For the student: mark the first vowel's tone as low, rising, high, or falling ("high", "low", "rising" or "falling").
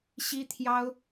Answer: high